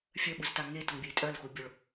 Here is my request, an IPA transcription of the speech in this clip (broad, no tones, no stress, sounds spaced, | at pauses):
fʲ œ ɓ u z t a ŋ e t ʊ ŋ bʲ ɛ i̯ tʼ œ l x u bʲ o ɭ